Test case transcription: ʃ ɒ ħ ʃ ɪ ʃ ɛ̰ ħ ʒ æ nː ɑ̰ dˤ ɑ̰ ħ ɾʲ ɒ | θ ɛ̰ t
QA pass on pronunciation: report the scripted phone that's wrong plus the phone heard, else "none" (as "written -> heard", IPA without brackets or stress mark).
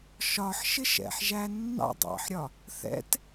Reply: none